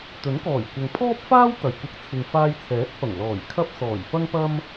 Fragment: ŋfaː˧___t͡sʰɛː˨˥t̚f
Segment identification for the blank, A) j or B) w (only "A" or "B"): A